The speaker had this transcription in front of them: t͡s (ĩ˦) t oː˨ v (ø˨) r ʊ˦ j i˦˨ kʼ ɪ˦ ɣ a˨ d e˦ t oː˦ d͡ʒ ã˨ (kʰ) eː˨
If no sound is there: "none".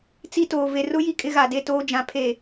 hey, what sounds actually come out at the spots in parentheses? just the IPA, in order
i˦, e˨, pʰ

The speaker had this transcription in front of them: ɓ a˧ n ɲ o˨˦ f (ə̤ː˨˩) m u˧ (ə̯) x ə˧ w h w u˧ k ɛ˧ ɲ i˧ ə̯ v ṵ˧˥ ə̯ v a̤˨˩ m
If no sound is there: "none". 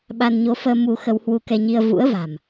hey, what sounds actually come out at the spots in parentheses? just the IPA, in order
əː˧, none

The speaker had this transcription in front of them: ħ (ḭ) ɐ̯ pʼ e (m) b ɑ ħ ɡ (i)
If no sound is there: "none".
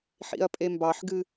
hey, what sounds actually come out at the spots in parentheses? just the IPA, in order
ḭ, m, ɨ

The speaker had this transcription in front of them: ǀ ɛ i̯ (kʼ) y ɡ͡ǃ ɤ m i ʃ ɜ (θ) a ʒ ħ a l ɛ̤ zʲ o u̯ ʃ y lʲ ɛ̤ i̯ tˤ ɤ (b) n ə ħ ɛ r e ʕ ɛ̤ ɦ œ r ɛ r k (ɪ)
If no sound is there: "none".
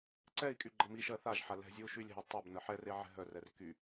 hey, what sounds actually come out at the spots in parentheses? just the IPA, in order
kʼ, θ, b, y

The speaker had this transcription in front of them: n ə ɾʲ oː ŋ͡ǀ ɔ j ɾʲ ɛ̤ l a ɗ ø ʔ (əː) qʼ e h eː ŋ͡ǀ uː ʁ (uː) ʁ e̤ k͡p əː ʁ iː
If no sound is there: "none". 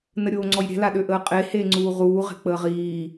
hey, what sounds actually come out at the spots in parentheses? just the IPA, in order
əː, uː

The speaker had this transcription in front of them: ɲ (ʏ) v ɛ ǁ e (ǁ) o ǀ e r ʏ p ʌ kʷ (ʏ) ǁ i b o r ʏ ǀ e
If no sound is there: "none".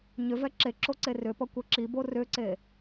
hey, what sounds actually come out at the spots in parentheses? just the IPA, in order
ʏ, ǁ, ɛ

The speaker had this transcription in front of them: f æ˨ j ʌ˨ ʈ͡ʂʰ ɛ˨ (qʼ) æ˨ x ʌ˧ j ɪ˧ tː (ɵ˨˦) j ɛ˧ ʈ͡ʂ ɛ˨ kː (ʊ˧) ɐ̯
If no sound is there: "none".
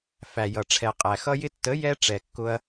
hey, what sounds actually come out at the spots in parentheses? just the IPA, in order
qʼ, ə˨˦, ʊ˧

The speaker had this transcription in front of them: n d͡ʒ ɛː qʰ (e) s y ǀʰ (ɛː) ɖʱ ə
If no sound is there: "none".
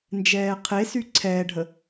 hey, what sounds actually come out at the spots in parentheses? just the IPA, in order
e, ɛː

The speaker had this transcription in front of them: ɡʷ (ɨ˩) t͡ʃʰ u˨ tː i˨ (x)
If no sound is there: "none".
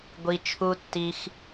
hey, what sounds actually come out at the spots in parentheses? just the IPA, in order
i˩, x

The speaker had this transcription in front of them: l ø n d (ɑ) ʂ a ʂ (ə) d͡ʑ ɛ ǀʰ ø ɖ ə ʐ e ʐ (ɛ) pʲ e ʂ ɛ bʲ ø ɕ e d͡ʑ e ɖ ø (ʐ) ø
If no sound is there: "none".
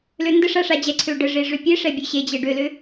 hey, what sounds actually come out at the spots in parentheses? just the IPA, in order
ə, a, ø, l

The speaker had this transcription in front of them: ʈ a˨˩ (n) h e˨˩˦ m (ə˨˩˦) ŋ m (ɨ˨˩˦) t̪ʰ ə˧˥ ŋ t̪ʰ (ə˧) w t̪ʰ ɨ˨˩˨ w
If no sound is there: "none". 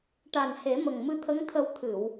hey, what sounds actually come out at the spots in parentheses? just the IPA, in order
n, ə˨˩, ɨ˧, ə˧

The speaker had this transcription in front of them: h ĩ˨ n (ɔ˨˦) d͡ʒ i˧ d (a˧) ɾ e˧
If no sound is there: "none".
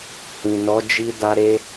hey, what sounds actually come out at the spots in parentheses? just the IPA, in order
ɔ˨˦, a˧

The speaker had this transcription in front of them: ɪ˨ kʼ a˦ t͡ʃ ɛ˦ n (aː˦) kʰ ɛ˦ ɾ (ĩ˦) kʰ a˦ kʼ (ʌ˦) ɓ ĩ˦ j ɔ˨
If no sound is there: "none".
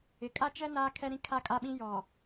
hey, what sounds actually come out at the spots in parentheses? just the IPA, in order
aː˦, ĩ˦, a˦

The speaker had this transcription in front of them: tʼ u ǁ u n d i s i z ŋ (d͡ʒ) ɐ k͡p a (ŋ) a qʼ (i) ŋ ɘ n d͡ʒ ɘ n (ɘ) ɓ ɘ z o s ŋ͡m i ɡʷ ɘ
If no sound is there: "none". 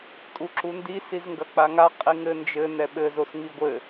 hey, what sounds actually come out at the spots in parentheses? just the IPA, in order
ɡ, ŋ, i, ɛ

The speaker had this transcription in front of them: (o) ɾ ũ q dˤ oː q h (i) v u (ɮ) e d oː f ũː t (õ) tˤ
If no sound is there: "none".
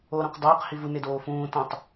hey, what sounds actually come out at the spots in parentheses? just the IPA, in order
o, i, n, õ

